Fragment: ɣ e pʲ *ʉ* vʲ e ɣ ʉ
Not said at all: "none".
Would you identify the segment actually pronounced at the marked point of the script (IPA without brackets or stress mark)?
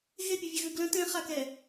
ʉ